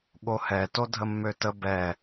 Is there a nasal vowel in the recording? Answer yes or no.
no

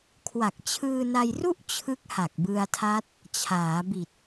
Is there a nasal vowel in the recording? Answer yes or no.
no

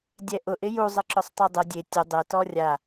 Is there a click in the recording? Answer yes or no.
yes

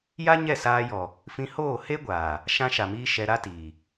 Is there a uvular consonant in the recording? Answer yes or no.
no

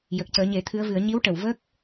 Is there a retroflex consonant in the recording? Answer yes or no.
yes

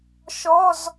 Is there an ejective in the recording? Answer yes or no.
no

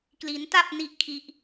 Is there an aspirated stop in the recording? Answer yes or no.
yes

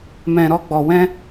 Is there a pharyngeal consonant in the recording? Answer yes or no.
no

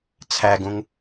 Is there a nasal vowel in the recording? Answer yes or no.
yes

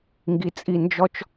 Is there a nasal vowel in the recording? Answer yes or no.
no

